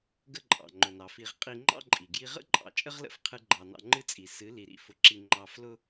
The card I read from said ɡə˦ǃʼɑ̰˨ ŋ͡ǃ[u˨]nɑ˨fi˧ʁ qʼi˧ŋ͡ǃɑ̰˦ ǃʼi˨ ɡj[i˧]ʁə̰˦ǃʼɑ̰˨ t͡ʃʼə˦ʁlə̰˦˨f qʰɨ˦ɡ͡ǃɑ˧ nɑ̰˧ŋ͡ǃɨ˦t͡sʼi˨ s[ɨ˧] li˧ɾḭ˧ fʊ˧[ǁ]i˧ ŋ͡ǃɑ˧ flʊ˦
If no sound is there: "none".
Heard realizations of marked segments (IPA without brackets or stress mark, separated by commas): ʊ˨, i˧, ɨ˨˦, ǁ